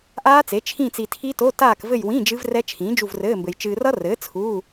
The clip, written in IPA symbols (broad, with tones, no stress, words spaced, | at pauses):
ʔaː˦˥t͡se˩˥ t͡ʃʰĩ˦˨t͡si˨ tʰi˦˥to˧˥˧ taː˦˨kvɘ˦˨jwĩ˧˥˧ d͡ʒɨ˦˥vrɛ˦˥ t͡ʃʰĩː˩˥d͡ʒu˦˨vrɘː˧˥˧mbɘ˨j t͡ʃɨː˨rʌ˦˥rɘː˩˥ t͡sʰu˧˥˧